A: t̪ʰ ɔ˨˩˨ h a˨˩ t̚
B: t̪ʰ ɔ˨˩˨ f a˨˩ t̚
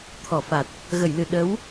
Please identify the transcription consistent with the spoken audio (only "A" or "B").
B